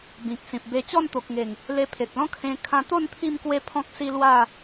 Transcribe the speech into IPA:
b ĩ˨ k̚ s ĩ˨ p̚ b e˧ t͡ɕ ɔ˥˧ n t̪ o˨ k̚ ŋ e˨˩ ŋ | l e˧ pʰ e˨ t̚ l ɔ̃˦ kʰ ẽ˦ kʰ ã˧ t̪ o˥˧ n t̪ʰ i˥˧ m k w e˦ pʰ ɔ̃˦ k̚ s i˦ l w a˥˧

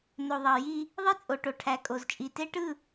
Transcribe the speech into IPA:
n o˨ ðˤ ɑ˨ j i˦ | ðˤ i˦ t͡sʼ o˨ ʈ o˨ ʈʰ æ˨ kʼ o˨ z t͡ʃʼ i˨ t e˦ ʈ ɯ˦˨

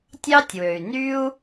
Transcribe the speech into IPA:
tʲ ɑ˥ tʲ w ø˩ y̯ n y˥ u̯

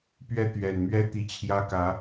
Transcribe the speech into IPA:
p ɥ ɛ˥˩ t̪ ɥ ɛ˨˩ n m ɥ ɛ˥ t̪ i˧˥ t͡ɕʰ j ä˥ k ä˧˥

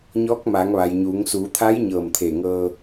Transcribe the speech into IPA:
ɲ ɔː˧˥ k̚ m aː˩˧ ŋ ʋ a˩ j ɲ uː˩˧ ŋ s uː˩˧ t̪ʰ a˧˥ j ɲ ɤː˧˩ m t̪ʰ eː˧˩ ŋ ɤː˧

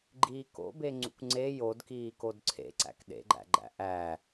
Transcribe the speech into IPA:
ɡ͡ǃ iː k o̰ b e ŋ͡ǀ ṵ kʷ ŋ͡ǀ e j o d k iː k o d ǀʰ ḛ ǀ æ̰ k ɗ ḛ ɡ͡ǃ æ̰ ɡ͡ǃ æ̰ ʔ æ

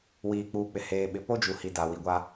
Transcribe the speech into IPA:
w iː˨ k͡p uː˨ k͡p ɪ˨ h eː˨ ɓ ɪ˨ p o˦ d͡ʒ u˨ h i˨ d a˨ w i˨ ɡʷ a˦

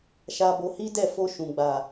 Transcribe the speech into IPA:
ʃ a˧ b o˧ h i˦ d ɛ˦˨ f o˧ ʃ ũ˨ ɡ͡b a˨

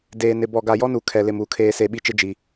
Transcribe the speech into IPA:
d eː˨ n ɪ˨ b ɔ˨ ɡ a˨ j ɔ˦ n u˨ kʰ ɛ˨ l ɪ˨ m u˨ kʰ eː˨ s e˨ ɓ i˨ t͡ʃ ɪ˨ d͡ʒ i˨

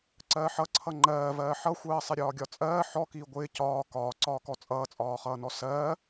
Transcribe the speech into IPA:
ǀ ɜː ħ ʌ ǀʰ ʌ ŋ͡ǃ ɜː v ɜː ħ ʌ xʷ ɜː sˤ ɪ ɾʲ ɒː ɡʲ ɒ t͡sʼ ɜː ħ ɔ k iː ɡʷ ɪː c ɒː k ɒː ǀ ɒː k ɔ t͡sʼ ʌː t͡sʼ ɒː χ ʌː n ɔ s ɜː

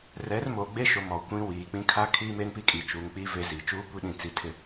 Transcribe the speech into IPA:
r ɛ˨˦ r m o˨ ɡ͡b e˦ ʃ o˨ m ɔ˨ kʷ ĩ˦ w iː˨ k͡p ĩ˦ kʰ a˦ kʰ iː˦ m e˦ n p i˦ kʼ i˨ t͡ʃ uː˨ ŋ k͡p i˦ v e˦ z i˨ t͡ʃ uː˦ kʷ i˦ ɗ ĩ˨ t͡s i˨ tʰ ɪ˨

